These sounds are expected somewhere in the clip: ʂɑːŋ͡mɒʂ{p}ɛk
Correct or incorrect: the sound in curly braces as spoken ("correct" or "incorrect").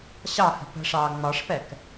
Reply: correct